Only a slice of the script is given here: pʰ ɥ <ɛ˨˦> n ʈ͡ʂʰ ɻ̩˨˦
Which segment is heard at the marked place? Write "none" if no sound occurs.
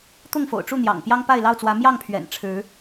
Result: ɛ̰˨˩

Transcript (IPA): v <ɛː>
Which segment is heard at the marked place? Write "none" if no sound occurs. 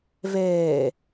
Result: ɛː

